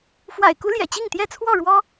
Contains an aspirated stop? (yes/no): yes